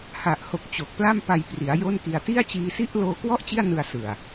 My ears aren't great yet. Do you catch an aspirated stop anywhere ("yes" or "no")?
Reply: no